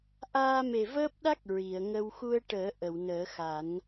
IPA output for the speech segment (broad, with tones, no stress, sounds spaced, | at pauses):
ʔ aː˧ m e˨˩ v əː˦˥ p̚ ɗ a˦˥ k̚ ɹ i˨˩˨ ə̯ ŋ ə˧ w x u˧ ə̯ ʈ əː˨˩˦ ʔ ə˨˩˨ w n əː˨˩˦ x a˨˩˦ n